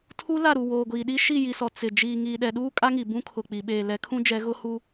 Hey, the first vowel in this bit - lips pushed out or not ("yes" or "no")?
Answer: yes